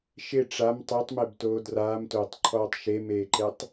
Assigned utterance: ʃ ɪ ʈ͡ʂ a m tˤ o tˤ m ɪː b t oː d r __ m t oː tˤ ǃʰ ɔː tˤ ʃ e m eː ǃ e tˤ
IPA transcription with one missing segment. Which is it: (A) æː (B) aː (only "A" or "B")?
B